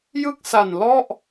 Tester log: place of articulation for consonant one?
palatal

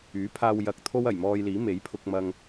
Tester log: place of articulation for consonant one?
labial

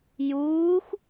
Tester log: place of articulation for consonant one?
palatal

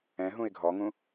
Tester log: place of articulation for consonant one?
glottal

